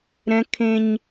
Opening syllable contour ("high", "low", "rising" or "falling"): high